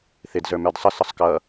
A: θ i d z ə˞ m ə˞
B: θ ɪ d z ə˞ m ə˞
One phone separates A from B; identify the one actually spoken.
B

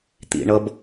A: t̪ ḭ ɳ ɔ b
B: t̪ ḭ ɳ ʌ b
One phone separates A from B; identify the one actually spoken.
B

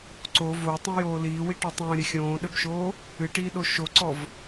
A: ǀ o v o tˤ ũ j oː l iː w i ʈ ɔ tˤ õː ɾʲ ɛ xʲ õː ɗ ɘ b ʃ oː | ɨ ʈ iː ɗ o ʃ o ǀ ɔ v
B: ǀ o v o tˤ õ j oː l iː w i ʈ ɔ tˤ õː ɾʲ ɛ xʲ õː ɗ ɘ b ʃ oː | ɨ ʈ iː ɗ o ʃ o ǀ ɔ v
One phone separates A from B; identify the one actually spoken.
B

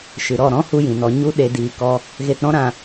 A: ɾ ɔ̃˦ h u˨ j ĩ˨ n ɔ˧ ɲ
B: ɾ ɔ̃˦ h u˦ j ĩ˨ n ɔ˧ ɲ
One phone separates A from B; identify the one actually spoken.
B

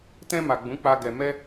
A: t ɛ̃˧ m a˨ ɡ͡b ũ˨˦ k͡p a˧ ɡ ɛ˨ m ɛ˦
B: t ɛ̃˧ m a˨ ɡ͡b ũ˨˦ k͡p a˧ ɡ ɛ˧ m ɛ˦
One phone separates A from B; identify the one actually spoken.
B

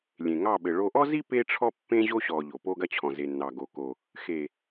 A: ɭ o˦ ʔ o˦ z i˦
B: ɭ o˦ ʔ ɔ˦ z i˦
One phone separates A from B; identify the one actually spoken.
B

